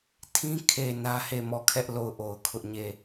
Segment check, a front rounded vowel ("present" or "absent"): absent